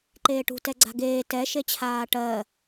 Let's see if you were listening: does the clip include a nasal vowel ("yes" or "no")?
no